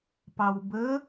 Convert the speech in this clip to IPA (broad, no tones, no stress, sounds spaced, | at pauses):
p ɑ w b ə